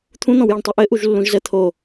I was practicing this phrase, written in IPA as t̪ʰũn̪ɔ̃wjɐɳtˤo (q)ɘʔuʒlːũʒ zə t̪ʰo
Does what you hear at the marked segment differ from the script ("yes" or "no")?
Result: yes